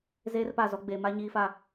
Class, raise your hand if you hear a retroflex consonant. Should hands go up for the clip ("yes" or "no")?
no